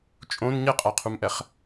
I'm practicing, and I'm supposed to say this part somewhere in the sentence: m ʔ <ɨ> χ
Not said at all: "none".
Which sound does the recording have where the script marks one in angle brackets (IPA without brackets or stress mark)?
ɛ